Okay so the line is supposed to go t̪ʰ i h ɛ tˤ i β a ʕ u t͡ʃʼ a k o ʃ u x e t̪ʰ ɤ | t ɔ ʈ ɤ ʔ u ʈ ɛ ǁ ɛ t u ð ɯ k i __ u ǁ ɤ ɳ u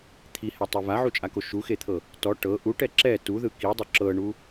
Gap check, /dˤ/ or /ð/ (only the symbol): dˤ